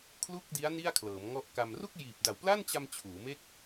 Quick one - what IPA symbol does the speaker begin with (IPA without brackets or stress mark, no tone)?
kʰ